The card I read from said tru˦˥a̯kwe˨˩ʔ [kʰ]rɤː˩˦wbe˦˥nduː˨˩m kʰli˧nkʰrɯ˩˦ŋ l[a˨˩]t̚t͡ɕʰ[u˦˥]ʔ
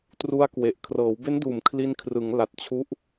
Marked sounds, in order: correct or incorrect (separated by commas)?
correct, correct, correct